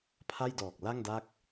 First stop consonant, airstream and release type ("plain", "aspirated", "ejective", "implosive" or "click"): aspirated